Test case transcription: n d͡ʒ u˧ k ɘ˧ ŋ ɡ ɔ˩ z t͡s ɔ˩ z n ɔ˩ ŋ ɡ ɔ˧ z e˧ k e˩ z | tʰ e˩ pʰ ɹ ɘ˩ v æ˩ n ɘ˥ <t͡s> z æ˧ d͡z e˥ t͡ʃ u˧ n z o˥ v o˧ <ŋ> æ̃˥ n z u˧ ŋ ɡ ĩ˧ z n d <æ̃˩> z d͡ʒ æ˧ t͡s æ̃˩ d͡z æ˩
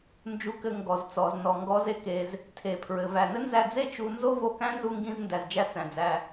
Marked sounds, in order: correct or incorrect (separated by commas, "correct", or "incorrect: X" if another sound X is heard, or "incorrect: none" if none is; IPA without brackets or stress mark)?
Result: incorrect: n, incorrect: k, incorrect: æ˩